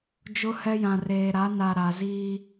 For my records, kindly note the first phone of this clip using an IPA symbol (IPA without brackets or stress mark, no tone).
d͡ʒ